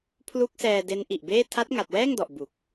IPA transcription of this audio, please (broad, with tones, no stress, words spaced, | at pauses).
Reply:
pʰlu˦˥k̚sɛː˧ de˦˥nʔi˨˩ʔbeː˥˩ tʰa˦˥t̚ŋa˨˩t̚wɛː˥˩ŋdɔ˨˩ʔ bu˨˩k̚